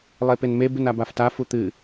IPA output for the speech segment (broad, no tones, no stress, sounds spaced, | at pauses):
lˠ e p e n m e b ɨ n a b a f t a f u t̪ ɨ